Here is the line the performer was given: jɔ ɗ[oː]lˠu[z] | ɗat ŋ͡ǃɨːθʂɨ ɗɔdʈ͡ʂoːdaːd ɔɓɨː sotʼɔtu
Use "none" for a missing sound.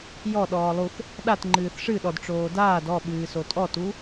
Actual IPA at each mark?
ɔː, θ

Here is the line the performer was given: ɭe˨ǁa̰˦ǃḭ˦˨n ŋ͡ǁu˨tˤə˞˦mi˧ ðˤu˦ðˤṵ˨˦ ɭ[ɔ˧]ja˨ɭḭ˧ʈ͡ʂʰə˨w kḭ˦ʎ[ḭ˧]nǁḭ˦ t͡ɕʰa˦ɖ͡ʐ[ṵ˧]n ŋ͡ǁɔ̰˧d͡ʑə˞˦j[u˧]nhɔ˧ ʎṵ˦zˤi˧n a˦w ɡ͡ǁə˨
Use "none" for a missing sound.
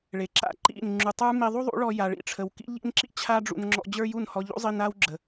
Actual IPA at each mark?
ɔ˧, ḭ˦, ṵ˧, u˦˨

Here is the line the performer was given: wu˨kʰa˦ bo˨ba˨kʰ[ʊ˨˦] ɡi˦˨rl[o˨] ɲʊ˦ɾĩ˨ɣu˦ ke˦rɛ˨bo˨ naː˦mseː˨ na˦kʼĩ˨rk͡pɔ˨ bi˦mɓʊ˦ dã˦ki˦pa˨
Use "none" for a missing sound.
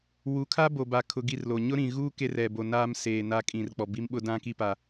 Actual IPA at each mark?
ʊ˨, o˨

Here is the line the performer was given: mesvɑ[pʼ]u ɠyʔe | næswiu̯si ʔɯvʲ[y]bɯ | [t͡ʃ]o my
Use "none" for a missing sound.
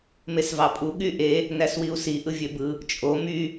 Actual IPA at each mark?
pʼ, ø, t͡ʃʼ

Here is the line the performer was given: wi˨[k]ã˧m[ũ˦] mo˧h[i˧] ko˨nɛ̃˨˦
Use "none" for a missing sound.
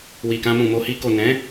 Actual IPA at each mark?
k, ũ˨, i˧

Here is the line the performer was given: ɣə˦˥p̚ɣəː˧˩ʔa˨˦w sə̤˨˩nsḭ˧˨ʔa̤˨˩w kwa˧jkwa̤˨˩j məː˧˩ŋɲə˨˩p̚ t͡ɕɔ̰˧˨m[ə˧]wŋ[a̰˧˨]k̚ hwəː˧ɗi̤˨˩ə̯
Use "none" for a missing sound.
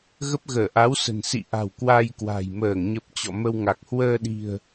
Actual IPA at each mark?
ə˧, a˨˩

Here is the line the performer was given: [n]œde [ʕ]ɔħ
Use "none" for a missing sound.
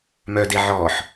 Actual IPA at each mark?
m, ʕ

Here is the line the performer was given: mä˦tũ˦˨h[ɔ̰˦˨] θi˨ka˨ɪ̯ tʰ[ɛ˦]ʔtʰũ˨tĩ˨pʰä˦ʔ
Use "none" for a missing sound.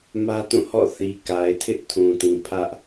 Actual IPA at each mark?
ɔ̰˦˨, ɪ˦

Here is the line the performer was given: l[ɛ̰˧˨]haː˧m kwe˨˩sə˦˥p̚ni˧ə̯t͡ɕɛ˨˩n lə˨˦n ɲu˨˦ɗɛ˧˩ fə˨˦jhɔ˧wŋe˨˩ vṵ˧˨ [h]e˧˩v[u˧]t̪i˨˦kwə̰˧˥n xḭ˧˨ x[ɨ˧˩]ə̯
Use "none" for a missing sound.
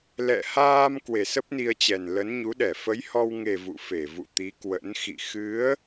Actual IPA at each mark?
ɛ̰˧˨, f, ṵ˧˨, ɨ˨˦

